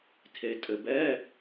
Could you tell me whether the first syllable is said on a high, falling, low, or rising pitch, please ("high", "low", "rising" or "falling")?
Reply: low